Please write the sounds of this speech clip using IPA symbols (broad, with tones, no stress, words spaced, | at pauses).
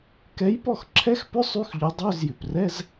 kɛ˨˥jpɔ˥˩xǁʰɛ˧˥˧xpʏ˧˥˧ sˤy˧˥˧xʎʊ˨˥ dˤø˧˥˧zjʏ˩prɛ˧˥˧z